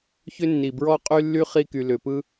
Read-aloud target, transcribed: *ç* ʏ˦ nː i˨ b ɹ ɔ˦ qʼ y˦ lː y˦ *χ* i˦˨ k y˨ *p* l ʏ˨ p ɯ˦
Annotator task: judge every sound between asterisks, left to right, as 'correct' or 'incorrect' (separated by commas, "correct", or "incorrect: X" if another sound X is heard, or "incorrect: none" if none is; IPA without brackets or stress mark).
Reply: correct, correct, incorrect: none